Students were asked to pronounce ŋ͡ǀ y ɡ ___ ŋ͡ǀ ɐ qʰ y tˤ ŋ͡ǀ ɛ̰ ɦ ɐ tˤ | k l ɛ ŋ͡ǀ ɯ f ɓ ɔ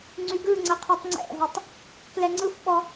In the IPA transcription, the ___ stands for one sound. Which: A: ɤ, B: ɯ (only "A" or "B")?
B